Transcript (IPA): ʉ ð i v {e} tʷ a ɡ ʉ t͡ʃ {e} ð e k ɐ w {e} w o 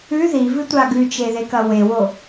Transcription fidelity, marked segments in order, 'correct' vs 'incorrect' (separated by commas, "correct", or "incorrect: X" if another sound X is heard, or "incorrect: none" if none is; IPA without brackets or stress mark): incorrect: ɨ, correct, correct